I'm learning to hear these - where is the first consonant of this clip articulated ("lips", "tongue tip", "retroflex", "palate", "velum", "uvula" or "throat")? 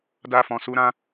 tongue tip